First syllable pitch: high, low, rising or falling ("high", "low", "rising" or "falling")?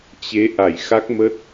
rising